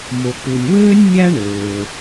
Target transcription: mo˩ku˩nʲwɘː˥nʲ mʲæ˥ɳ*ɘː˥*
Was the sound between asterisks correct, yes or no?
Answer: no